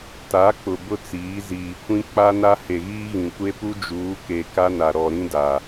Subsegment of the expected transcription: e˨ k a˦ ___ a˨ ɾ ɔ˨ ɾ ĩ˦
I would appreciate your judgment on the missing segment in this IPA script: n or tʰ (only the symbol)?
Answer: n